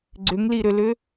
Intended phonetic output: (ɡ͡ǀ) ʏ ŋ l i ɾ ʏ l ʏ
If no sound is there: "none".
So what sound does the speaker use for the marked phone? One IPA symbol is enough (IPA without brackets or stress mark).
ɡ͡ǀ